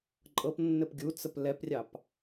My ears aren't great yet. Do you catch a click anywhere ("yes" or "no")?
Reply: yes